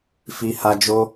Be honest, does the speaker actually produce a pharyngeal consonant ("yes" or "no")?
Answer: no